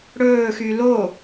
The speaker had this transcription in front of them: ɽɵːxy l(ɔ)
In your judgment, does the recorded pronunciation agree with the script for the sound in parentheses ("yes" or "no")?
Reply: no